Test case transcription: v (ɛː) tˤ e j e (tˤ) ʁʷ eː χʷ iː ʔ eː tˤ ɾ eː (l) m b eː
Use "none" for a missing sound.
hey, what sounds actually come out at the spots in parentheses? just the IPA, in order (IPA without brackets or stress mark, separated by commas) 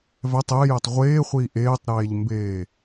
ɛ, tˤ, ʎ